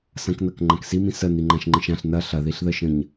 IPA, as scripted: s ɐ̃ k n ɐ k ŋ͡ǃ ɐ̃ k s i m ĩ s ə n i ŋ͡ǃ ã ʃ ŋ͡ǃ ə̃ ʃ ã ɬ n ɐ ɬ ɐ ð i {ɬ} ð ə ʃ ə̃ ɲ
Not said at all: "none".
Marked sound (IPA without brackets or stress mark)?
ɬ